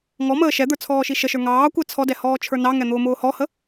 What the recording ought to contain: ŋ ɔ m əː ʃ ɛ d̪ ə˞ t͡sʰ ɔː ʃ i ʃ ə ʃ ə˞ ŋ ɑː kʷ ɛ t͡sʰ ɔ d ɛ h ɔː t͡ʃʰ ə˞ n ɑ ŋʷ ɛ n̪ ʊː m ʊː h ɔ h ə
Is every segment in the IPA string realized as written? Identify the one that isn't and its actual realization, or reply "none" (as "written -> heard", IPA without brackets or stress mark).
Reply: ŋʷ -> ŋ